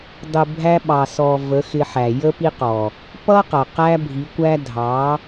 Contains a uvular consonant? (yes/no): yes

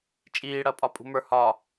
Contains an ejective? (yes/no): yes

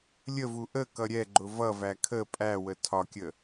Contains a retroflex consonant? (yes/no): no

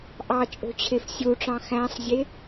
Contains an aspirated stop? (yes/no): yes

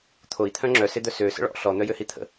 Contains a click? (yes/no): yes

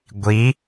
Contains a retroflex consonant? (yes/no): no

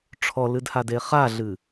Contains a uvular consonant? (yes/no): yes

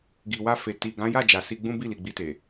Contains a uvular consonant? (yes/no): no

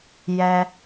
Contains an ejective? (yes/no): no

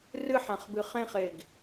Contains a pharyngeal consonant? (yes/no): yes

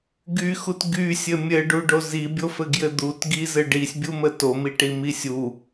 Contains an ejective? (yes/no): no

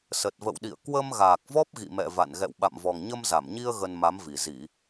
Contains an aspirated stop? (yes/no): no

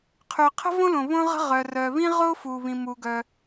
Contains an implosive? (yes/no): no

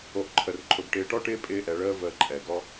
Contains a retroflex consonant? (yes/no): yes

